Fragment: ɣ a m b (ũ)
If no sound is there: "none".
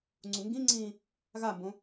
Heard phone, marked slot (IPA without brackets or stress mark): õ